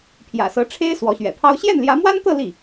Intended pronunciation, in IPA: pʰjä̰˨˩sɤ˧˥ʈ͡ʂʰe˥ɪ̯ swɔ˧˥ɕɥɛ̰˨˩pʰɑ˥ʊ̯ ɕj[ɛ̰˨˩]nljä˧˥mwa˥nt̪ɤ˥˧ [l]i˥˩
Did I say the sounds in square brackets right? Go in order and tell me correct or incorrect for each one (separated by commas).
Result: incorrect, correct